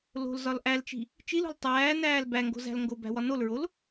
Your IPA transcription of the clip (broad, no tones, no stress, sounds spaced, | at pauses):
l o̤ l z ɒ l ʔ æ l t͡ʃ i̤ | t͡ʃ i l o̤ l tˤ æː n æː l b æ ŋ ɡ o̤ z æ̤ l ŋ ɡ o b æ̤ w ɒ n o l ɹ o l